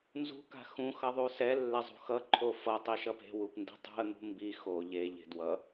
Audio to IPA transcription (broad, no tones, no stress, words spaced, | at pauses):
nzṳ ka̤xũ xʌðˤusɛ lːezˤṳxʌ ǃʰofʌ tˤiʃʌpe̤ wupndi̤tˤṳə̯ n̪ṳmbi xo ʎe ʎe̤dwʌ